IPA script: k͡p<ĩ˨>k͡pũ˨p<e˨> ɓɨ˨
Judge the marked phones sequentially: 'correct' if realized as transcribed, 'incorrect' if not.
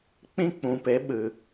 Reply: incorrect: ĩ˦, incorrect: e˨˦

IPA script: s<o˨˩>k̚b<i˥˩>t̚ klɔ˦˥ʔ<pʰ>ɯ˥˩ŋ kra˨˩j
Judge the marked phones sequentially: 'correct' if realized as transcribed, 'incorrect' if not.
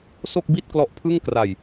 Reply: incorrect: o˥˩, correct, correct

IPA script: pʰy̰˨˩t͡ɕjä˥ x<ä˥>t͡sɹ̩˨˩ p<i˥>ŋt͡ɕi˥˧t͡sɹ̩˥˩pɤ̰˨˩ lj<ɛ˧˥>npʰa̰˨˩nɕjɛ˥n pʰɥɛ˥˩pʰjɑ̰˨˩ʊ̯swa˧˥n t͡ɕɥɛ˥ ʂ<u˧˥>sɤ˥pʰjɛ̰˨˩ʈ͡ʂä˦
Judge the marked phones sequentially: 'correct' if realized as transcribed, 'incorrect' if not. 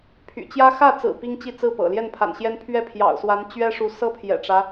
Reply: incorrect: ä˥˩, correct, incorrect: ɛ˥˩, correct

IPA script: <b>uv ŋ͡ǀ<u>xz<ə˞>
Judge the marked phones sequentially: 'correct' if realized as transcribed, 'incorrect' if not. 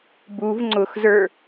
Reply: correct, incorrect: ʊ, correct

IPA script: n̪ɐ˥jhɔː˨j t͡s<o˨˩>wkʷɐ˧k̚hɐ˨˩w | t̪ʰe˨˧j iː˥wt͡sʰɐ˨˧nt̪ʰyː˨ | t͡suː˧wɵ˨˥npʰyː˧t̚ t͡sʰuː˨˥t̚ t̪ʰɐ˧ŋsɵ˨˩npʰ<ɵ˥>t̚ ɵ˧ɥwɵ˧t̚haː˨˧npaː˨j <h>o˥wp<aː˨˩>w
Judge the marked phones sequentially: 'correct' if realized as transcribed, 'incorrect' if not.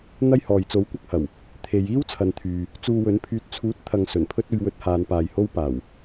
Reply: incorrect: o˨˥, correct, correct, correct

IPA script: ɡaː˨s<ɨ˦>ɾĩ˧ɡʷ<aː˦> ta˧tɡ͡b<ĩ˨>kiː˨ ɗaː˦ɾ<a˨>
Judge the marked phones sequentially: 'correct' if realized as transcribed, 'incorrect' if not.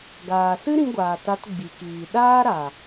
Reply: correct, incorrect: aː˨, incorrect: i˨, correct

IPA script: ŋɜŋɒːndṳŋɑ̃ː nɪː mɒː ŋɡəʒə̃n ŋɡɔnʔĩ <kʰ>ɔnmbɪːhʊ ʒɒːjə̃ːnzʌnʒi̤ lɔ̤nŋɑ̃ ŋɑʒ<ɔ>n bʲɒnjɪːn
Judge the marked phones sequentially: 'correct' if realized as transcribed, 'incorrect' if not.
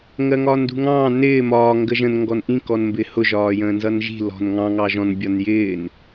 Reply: incorrect: k, incorrect: ɔ̃

